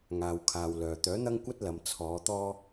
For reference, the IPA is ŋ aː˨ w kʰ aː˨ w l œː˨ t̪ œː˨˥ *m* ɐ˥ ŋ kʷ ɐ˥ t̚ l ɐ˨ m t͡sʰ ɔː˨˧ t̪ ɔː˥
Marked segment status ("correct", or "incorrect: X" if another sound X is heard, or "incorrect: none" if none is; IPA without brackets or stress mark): incorrect: n̪